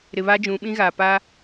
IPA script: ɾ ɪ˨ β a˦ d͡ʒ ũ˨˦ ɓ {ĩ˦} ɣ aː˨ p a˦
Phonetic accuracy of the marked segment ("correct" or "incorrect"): correct